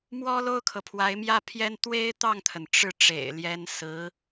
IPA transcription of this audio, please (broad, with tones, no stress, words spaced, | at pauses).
mwɔ˥lo˥ʊ̯kʰɤ˨ pʰwa˧˥ɪ̯mjä˥pʰjɛ˥n t̪we˥ɪ̯t̪ɑ˥˩ŋt̪ʰə˩n ʈ͡ʂɻ̩˥˩ ʈ͡ʂḛ˨˩ɪ̯ ljɛ˧˥n sɹ̩˧˥